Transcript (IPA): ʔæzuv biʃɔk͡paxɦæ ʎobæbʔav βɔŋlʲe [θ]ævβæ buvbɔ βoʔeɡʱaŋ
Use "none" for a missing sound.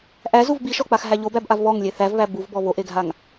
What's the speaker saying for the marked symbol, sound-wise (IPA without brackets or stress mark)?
θ